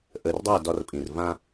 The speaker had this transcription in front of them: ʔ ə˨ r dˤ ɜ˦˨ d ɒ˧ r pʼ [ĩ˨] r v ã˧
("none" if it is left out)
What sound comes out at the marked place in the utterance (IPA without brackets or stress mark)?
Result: ĩ˨